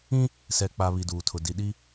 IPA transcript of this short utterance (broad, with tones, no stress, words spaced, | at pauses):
ĩ˦ | sɛ˨k͡pa˨ βi˨duː˨tʰʊ˨ di˨ɗi˦